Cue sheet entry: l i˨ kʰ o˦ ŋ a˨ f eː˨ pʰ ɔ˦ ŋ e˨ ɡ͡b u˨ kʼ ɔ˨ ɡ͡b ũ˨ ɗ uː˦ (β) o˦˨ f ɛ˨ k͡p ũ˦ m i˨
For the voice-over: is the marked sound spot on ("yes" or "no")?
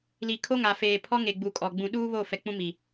yes